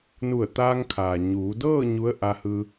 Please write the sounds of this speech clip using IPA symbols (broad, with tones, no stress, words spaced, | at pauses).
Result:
nu˧˩ə̯t̪aː˧ŋkʰaː˩ ɲuː˩˧dɤː˥˨ ɲu˧˥ə̯ ʔa˧hɯː˧